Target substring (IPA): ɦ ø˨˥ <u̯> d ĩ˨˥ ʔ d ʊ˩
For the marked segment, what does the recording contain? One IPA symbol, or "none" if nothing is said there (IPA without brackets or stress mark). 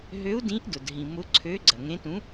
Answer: u̯